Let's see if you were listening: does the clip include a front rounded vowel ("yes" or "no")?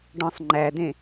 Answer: no